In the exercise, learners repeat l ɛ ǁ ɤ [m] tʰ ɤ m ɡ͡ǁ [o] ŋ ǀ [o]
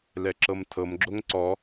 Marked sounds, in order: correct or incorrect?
correct, correct, incorrect: ɔ

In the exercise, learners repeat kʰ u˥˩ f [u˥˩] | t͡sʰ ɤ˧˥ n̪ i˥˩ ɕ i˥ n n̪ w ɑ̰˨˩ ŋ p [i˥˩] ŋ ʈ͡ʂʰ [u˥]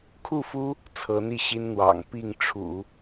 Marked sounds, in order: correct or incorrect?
incorrect: u˥, correct, incorrect: ṵ˨˩˦

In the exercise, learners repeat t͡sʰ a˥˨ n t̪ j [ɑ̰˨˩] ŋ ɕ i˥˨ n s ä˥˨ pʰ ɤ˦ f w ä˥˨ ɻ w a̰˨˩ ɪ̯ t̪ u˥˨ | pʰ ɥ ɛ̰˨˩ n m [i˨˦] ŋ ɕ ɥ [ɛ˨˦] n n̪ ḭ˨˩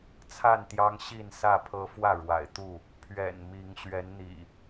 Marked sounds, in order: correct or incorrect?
incorrect: ɑ˦, correct, correct

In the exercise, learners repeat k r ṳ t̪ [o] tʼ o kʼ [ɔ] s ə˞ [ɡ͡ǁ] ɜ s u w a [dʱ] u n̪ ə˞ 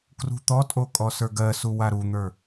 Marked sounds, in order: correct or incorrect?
incorrect: ɔ, correct, incorrect: ɡ, incorrect: ɾ

